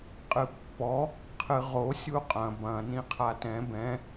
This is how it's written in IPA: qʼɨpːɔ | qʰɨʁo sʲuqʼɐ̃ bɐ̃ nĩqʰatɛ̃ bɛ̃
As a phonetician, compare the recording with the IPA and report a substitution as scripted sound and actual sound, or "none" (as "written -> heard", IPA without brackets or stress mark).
none